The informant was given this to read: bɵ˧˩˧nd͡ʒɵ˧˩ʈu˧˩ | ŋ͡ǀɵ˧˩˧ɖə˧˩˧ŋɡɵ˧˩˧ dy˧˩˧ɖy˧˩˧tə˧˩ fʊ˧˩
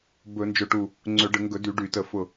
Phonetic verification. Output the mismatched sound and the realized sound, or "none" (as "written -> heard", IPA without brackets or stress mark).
none